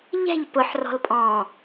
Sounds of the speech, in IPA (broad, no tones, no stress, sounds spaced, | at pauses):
ʎ ɛ̤ ʎ p ʊ ħ r ɔ̤ l pʼ ɔ̃ː